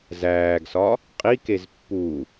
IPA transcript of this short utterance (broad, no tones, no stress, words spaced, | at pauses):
zæːɡsɒ | qʼikez pːu